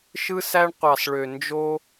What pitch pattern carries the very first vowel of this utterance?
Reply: high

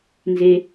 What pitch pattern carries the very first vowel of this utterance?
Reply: high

